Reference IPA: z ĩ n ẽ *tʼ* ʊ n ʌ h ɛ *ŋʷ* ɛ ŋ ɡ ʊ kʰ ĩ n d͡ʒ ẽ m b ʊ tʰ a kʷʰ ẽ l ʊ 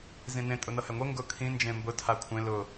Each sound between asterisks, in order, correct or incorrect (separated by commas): correct, correct